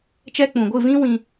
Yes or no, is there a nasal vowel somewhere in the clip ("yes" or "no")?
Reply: yes